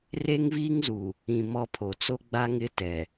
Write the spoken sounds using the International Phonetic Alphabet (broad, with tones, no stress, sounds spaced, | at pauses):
r e˦ ŋ v iː˦ ŋ z u˨ | ĩ˨ m ɔ˦ pʰ o˨ t͡s o˦ ɡ͡b a˦ ŋ ɪ˦ t ɛ˨